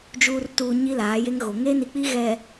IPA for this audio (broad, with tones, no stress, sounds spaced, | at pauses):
d͡ʒ uː˨ r t uː˨ ɲ i˦ l aː˨˦ j e˦ ŋ ɣ o˨ ŋ e˦ n i˨ k͡p i˦ ɣ ɛ˨